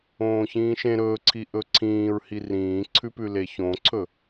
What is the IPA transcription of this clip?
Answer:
õːçĩːʃẽ ɾɵːǀʰi ʔɵǀʰĩːɹhi rĩːǀʰʉpʉ leçõǀʰɵ

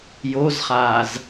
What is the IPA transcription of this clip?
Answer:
jozχaːz

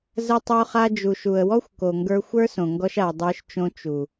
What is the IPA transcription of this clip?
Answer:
zə˧tˤo˧ χa˧d͡ʒu˨ʃu˨ə̯wɔ˦xʷ ko˨ŋɡə˞˧ xʷə˞˦sõ˨ ŋɡɔ˧ʃa˨ə̯ dˤə˞˧ʃt͡ʃõ˧ t͡ʃu˨

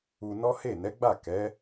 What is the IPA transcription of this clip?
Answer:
u˧nɔ˦ he˦˨ nɛ˨˦ɡ͡ba˦˨kɛ˨˦

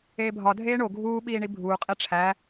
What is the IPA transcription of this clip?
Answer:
eːbʱɒ dʱeːɳo ɡʱuː ɓiːɳibʱuː qʼeʈ͡ʂʰæ

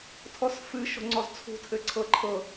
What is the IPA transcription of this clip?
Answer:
tʰɔsfɨ ʃo̤ŋ͡ǀɔzt͡sʰṳ tʰɘǀʰɤ ǃʰɤ

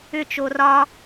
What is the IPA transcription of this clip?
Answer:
ʏt͡ʃo rɒ

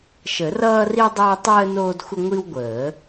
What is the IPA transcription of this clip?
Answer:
ʃə˨˩˦rʌː˦ri˦ dˤəː˦ tˤəː˦ noː˦dxʷə˦ ŋʷi˦wɡʷəː˨˩˦

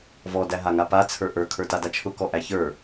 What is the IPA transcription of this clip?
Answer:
vɔdæ ɦaŋapa t͡sʰə˞ʔə˞ kʰə˞tadat͡ʃʰʊ kɔʔæçə˞

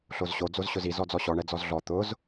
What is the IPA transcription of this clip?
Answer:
ɬozɕo d͡zozɕʊzi zɔd͡zɔɕɔ ɳɛd͡zɔzɮɔ t̪ʊz

